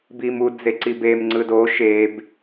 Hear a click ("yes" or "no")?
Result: yes